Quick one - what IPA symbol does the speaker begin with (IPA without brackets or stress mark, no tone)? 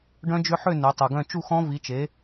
ɖ